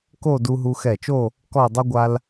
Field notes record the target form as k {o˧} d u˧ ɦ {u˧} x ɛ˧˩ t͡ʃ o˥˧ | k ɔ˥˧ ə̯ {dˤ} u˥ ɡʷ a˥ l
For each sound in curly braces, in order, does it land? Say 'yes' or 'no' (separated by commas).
no, yes, yes